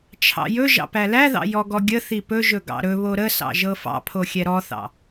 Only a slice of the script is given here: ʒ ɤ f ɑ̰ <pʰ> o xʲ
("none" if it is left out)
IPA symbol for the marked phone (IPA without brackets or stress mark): pʰ